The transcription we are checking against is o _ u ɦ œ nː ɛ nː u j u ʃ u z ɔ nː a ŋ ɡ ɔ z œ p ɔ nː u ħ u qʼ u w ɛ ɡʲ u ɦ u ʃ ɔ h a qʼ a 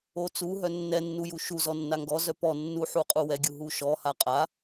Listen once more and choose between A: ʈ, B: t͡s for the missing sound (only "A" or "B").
B